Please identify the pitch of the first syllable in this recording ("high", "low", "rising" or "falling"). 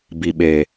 low